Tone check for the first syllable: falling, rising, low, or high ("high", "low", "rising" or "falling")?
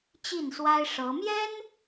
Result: falling